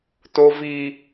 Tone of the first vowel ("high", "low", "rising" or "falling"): high